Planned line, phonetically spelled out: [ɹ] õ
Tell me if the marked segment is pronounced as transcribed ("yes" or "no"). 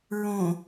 yes